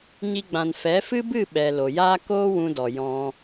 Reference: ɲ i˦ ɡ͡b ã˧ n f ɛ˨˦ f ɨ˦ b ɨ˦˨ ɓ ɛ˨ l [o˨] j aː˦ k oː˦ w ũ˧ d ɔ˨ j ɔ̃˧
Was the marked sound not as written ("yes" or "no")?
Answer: no